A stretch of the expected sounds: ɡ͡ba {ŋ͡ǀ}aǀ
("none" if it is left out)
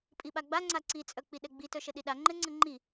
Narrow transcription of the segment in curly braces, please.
ŋ͡ǀ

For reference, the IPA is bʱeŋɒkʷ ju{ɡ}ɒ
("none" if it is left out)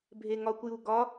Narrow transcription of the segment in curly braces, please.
ɡ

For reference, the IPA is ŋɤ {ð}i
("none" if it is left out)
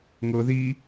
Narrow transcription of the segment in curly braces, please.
ð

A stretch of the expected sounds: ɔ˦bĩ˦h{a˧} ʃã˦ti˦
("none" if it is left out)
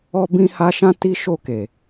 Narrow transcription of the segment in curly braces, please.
a˦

